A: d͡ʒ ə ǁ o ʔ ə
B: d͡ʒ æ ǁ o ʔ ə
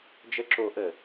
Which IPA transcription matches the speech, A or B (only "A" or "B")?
A